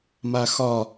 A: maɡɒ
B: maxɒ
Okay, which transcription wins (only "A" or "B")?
B